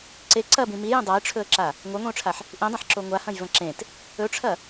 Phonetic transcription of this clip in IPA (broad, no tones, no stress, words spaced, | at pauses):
ǀe ǀɐbĩ mijẽ dˤajʈ͡ʂʰɵə̯ǁa | ŋʷɐŋʷĩʊ̯ʈ͡ʂʰaħ | ʔĩdˤɐ̃ħǁo ŋʷahɐ̃jvɐ̃ ǁẽt | ɵʈ͡ʂʰɐ